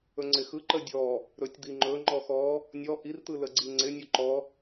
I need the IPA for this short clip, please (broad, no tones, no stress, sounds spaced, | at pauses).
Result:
ɵ ŋ͡ǀ ɪ x ɯ ǃ ə dʲ ɔ | ɾ ɵ tʲ d̪ i ŋ͡ǃ ɵ ŋ͡ǃ ɔ x ɔ | nʲ ɔ ʔ i r t̪ ɯ l ə ɡ͡ǀ i ŋ͡ǀ ɪ nʲ ɵ ǃ ɔ